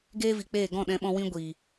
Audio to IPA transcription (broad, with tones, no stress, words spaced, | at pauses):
ɡeː˦vi˨k͡peː˦˨ ɡɔ̃˦˨ɗɛ̃˧ɓɔ̃˧ wĩ˦ɡʷiː˨